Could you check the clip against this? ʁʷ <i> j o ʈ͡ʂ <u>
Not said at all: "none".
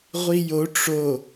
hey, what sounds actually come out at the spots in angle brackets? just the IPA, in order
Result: i, o

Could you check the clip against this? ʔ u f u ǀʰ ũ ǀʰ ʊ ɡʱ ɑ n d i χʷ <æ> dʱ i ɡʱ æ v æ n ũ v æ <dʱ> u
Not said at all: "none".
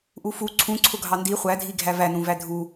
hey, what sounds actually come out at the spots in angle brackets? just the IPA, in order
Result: æ, dʱ

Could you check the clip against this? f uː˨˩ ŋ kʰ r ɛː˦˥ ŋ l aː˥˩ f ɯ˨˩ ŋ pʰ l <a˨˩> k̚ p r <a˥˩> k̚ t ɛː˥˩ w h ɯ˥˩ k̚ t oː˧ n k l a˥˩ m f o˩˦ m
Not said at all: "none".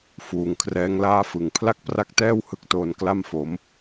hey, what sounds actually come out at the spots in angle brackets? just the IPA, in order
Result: a˥˩, a˥˩

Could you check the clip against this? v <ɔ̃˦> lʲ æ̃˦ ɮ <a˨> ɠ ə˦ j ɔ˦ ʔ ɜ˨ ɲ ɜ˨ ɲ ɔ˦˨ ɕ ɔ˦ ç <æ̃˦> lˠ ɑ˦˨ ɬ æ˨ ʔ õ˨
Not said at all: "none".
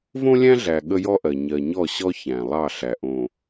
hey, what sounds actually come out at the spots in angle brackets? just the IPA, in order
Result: õ˦, æ˨, æ̃˨

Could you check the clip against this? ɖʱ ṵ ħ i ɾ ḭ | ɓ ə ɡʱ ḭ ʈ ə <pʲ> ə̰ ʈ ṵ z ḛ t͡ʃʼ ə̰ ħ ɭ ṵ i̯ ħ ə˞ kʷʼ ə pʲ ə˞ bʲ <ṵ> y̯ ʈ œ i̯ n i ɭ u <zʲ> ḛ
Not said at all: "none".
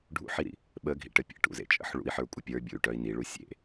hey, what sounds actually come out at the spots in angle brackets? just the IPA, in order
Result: pʲ, ṵ, sʲ

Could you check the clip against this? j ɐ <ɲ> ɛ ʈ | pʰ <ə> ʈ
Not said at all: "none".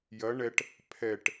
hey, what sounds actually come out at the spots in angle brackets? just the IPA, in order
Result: ɳ, ɛ

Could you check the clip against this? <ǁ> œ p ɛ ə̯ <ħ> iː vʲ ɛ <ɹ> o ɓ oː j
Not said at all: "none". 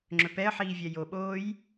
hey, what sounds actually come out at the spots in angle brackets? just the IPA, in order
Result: ŋ͡ǁ, ħ, j

